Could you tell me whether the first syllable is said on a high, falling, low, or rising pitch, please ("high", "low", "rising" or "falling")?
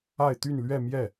falling